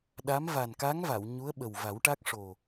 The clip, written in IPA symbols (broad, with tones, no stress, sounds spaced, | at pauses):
ɗ a˧˥ m v a˨˩ n k a˧˥ ŋ v a˨˩˨ w ɲ u˧˥ ə̯ ɓ ə˨˩ w v a˨˩˦ w ʈ a˦˥ k̚ ʂ o˨˩